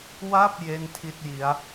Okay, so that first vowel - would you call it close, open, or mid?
open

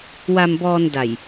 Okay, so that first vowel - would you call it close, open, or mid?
open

